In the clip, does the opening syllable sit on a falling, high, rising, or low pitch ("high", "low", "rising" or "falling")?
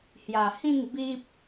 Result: low